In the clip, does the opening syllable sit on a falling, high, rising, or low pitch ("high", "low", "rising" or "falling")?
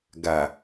low